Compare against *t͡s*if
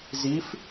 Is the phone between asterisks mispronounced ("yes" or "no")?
yes